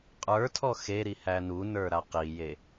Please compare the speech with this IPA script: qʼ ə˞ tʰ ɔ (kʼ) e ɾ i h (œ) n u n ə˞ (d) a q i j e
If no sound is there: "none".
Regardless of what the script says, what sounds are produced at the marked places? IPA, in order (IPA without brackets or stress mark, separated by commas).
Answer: x, æ, ɾ